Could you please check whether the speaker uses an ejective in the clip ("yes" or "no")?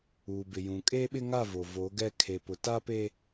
yes